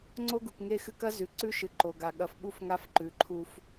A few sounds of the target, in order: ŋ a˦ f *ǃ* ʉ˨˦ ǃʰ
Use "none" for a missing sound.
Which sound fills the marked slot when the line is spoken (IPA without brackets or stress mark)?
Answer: ǃ